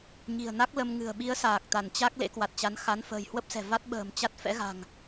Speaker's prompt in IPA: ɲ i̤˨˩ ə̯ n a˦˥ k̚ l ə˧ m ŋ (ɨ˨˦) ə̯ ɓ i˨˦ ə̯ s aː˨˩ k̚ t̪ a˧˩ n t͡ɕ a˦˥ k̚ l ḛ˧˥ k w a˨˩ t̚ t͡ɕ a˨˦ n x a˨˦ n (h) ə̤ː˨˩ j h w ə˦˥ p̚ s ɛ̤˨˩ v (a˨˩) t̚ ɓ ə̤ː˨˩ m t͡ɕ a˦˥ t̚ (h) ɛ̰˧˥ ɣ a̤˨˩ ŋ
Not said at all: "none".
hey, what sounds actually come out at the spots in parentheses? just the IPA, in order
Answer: ɨ̤˨˩, f, a˦˥, f

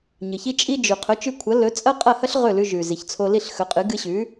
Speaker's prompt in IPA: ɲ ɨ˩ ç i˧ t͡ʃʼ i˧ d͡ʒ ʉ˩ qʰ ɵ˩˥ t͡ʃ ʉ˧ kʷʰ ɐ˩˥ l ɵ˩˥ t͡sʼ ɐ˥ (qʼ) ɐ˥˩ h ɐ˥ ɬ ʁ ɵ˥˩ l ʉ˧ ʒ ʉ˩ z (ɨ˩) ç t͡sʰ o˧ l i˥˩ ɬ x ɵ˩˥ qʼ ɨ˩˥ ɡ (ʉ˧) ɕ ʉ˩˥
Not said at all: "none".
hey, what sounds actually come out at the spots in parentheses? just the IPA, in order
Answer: qʼ, i˩, ɨ˧

